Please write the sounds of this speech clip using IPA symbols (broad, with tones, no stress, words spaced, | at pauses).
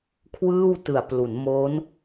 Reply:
kʰwɯː˥˩wtɯ˨˩a̯plu˩˦n mo˦˥n